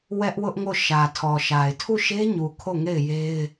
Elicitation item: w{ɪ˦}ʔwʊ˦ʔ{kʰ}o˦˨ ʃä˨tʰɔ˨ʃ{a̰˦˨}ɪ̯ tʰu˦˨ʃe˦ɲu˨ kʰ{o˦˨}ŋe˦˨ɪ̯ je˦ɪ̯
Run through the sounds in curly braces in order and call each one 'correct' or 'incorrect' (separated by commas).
incorrect, incorrect, incorrect, correct